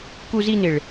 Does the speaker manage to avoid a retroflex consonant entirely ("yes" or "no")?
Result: no